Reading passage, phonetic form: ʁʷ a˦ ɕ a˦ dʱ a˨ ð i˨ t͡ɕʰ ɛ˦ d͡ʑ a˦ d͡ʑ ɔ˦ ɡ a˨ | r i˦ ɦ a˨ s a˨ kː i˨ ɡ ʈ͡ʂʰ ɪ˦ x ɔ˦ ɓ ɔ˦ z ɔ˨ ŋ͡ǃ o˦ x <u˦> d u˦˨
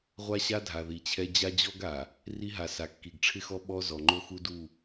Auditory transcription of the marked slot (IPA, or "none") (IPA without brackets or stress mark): u˦